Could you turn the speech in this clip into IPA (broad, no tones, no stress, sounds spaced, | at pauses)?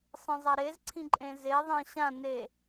sˤ ĩ zˤ ɐ ɾ e z ǀʰ ĩ ǃʼ ẽ z e ðˤ ẽ ɕ ã n e